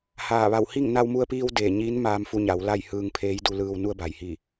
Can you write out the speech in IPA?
h aː˧˩ ʋ a˧˩ w h i˥˨ ŋ n a˧ w m u˧ ə̯ p iː˧ w d eː˧˩ ɲ iː˧˥ n m aː˧ m f u˧ ɲ a˩˧ w l a˥˨ j h ɯː˧ ŋ pʰ eː˧˥ j d u˧ l ɯː˧ w n u˧ ə̯ b a˩ j h i˧˩

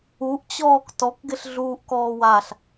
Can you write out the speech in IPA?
u ʔ t͡ɕ ɔː k t ɔ k ɡ ɪ ɬ ɮ uː ʔ k ɔː w a ɬ

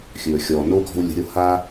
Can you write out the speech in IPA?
xʲ ɵː˨ xʲ ɔː˨ n o˦ ɡ ɔ̤˦ w lʲ ə̤˧ ɾʲ o˦ h a˦

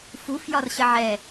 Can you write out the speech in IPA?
f u f j ɒ r ɕ ə ʕ ɛ

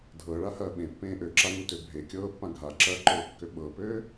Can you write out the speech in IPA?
dʱ ɤ ɭ a h ɐː ɓ ẽ pː ẽː ʔ ø ǁ a ŋ u t ø bʱ e kʲ ɤː pː ã ɡʱ a ǁ ɐː ǃ ɤː kː ø ɓ ɤ p øː

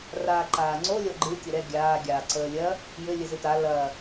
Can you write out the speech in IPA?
r aː ǃ aː ŋ͡ǀ o lʲ ɔ ɡ͡ǃ ɨ tʲ ə ɾ ɛ ɡʲ aː ɡʲ aː ǀ əː lʲ ɐ | j ɘ lʲ ɘ z ɨ t a l ɐ

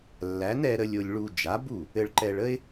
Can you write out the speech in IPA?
lː æ˩˥ n ɛ˧ ɾ ə˧ lʲ o˧ lʲ ɭ u˧ d͡ʒ a˩˥ b u˥˩ | ɘ˧ ɭ ǃ ɛ˧ ɭ ə˥ ɪ̯

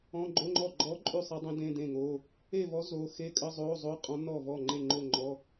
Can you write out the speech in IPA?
ɔ̃˧˥˧ ɡ͡ǃ o˧˥˧ ŋ͡ǃ ɔ˥˩ ɡ͡ǃ ɔ˧˥ ǃʼ ʉ˥˩ sˤ e˧˥ dˤ ẽ˧˥ d ẽ˧˥˧ d ẽ˥˩ ŋ o˧˥˧ | e˥˩ v ɔ˧˥ z o˧˥˧ x e˧˥˧ kʼ ə˧˥˧ zˤ o˧˥˧ zˤ o˧˥˧ qʼ ɔ̃˧˥ n ɔ˥˩ v ɔ˥˩ ŋ͡ǃ e˥˩ ŋ͡ǃ o˥˩ ŋ͡ǃ ɔ˧˥˧

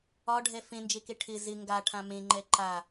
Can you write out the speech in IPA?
ɒ ɖʱ ɛ f ẽ n d͡ʒ e k e ʈʰ ɪ z ɪ ŋ ɡ a ʈʰ ã m ẽ ŋ͡ǃ ɛ ǃ a

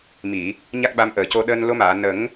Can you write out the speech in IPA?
m i˨˩˨ | ɲ a˦˥ k̚ ɓ a˧˥ m ʔ əː˨˩ c o˧ ɗ əː˧ n l o˧˥ m aː˨˩˨ n ə˨˩˦ ŋ

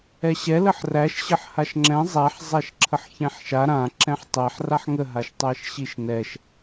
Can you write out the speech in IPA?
ɛ ɕ ɛ l ə ħ r æ ʃ ɕ ə ħ h a ʃ ŋ͡ǁ ɛ̃ zˤ æ ħ zˤ æ ʃ ǁʰ ə ħ ç ɛ̃ ħ ʃ a ɾ ã ǁ ɛ̃ ħ tˤ ɛ ħ r a ħ ŋ ə ɦ a ʃ tˤ æ ʃ ɕ i ʃ n ɛ ʃ

